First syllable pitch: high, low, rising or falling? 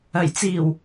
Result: low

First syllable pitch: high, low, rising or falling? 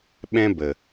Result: high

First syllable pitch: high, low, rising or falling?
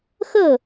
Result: falling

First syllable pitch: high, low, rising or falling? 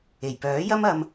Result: low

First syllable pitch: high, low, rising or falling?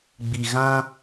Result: low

